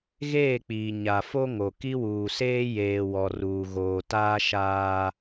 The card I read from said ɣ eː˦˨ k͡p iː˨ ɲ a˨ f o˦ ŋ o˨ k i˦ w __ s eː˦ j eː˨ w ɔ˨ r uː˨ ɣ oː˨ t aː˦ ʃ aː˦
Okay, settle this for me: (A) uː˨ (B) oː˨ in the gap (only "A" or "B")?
A